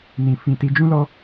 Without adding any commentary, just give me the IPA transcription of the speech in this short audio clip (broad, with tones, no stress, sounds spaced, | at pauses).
n ĩ˨ f ĩ˨ t i˧ d͡ʒ ũ˦ l ɔ˦